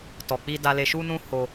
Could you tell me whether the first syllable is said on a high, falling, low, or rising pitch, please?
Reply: low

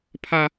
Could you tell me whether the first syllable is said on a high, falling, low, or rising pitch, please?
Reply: high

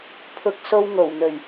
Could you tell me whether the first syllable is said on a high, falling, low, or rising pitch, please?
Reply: high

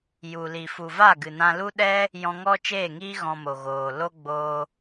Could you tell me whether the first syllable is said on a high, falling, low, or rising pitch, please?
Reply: low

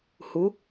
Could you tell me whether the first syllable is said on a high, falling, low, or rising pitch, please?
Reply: rising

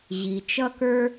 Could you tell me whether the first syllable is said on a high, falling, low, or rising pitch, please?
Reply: low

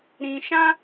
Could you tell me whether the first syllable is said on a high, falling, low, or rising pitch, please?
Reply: low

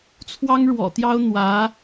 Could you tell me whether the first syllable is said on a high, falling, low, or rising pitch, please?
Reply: high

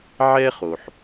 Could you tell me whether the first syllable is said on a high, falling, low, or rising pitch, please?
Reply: high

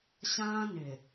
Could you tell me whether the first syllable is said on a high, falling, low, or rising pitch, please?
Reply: high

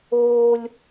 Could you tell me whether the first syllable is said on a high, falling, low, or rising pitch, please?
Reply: high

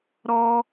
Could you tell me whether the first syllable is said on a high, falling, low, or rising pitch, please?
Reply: high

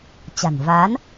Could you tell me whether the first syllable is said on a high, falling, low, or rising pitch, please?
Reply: low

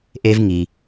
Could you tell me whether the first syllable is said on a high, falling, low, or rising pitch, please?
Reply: high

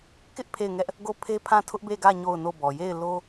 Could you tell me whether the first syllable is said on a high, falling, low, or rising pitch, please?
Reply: high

